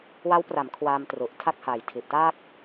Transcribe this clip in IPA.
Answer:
w a˦˥ w p r a˩˦ m kʰ w aː˧ m t r u˨˩ ʔ tʰ a˥˩ k̚ h a˨˩ j tʰ i˨˩ ʔ t aː˥˩ k̚

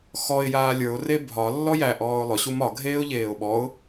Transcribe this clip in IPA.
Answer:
x ɔ ɪ̯ j aː lʲ ə˞ ʊ̯ r e bʱ ɒ lː ɔ j æ ʔ ɔː ʊ̯ lˠ ʊ ɕ u m ɒ ɡʱ eː ʊ̯ ʎ eː ʊ̯ ɓ ɔ ʊ̯

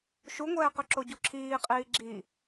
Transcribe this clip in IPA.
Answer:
ʃ u ŋʷ ɛː q ø ǁ o ɟ u ǁʰ iː qʼ iː ɡ͡ǁ i

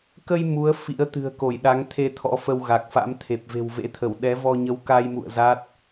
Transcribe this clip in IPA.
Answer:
k ə˧ j m u˨˦ ə̯ f ḭ˧˥ ə̯ t̪ ɨ̤˨˩ ə̯ k o˧˩ j ɗ a˨˦ ŋ t̪ʰ e˧ t̪ʰ ɔ̰˧˥ f ə˧ w ɣ a˨˩ k̚ f a̰˧˥ m t̪ʰ e˨˩ p̚ v e̤˨˩ w v ḛ˧˥ t̪ʰ ə˧˩ w ɗ ɛ˨˦ v ɔ˧ ɲ ə˨˦ w k a˧ j m ṵ˧˨ ə̯ z a˦˥ t̚

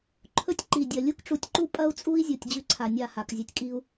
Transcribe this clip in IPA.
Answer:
ǃʰ ɵ˦ tʲ ǃ i˨ dʲ ɐ˨ lʲ u˦ k ʈ͡ʂ u˨ tʲ ǃ u˦ pʼ ɐ˦ u̯ t͡sʼ u˦ i̯ zʲ u˨ tʲ d͡ʑ ʉ˦ ǀʰ a˨ nʲ a˦˨ h a˨ k zʲ ʉ˨ tʲ kʼ i˦ u̯

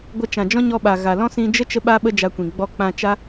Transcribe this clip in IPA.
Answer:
ɡʷ ə˧ t͡ʃ ã˨ d͡ʒ ɔ̃˦ ɲ ɔ˧ ɓ a˨ ɣ a˨ l ɔ̃˦ s ĩ˧ d͡ʒ ə˦ t͡ʃ ə˦ ɓ a˦ ɓ ə˦ d͡ʒ a˧ kʷ ĩ˨ ɡ͡b ɔ˧ k͡p ã˧ t͡ʃ a˦

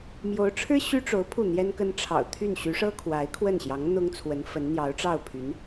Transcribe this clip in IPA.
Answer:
m j o˧˥ ʊ̯ ʈ͡ʂʰ ɻ̩˥ ɕ y˥ ʈ͡ʂ o˧˥ ʊ̯ pʰ u˥˩ n̪ j ɛ˥ n k ə˥ n ʈ͡ʂʰ ɑ̰˨˩ ʊ̯ t̪ʰ y˥˩ n ɕ y˧˥ ʂ ɤ˥ kʰ w a˧˥ ɪ̯ kʰ w ə˥˩ n ɕ j ɑ˧˥ ŋ n̪ ʊ˥ ŋ t͡sʰ w ə˧˥ n f ə˧˥ n n̪ j ɑ˧˥ ʊ̯ ʈ͡ʂ ɑ˥˩ ʊ̯ pʰ y˧˥ n

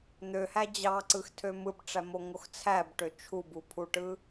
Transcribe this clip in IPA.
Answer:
n̪ ø h æ d͡ʑ ɑ ǀ ɯ x tʰ ø m ɯ b ʈ͡ʂ æ m o ŋ o x t͡sʰ æ b ʈ ø t͡ʃʰ u b u pʰ u ʈ ɯ

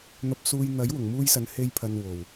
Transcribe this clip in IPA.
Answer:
n̪ ɐ˧ p̚ s uː˧ j n̪ ɐ˨˥ j w ʊ˨˩ ŋ m uː˧ j s ɐ˨ n h e˧ j pʰ ɐ˨ n w o˨˩ w

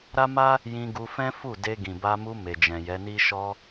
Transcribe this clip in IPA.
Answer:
ɾ a˦ m a˦ | j ĩ˧ ɡ u˧ f ɛ̃˦ f u˦˨ d e˧ ɡ ĩ˨ b a˧ m u˧ m e˨ d͡ʒ ɛ̃˨ j ɛ˨˦ n i˦ ʃ ɔ˧

